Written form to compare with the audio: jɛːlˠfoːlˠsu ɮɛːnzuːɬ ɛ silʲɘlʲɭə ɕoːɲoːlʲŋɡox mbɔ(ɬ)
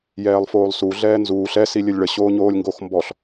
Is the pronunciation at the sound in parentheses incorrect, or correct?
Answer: correct